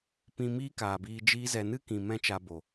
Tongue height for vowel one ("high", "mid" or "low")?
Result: high